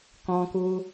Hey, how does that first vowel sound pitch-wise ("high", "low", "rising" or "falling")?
high